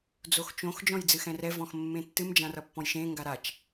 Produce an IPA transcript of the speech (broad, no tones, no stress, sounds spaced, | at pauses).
d͡z o x t͡ʃ õ x d͡ʒ ɔ̃ j d͡z ɨ x ɛ̃ r ɛ v ɔ̃ x mː ẽ tː ɨ m d͡ʒ ã r ʌ pː ɔ̃ j ʃ ẽ ŋ ɡ a ɾ a t͡ʃ